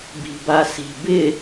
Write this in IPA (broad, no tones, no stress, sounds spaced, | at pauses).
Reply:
b i̤ b a s i̤ b ɪ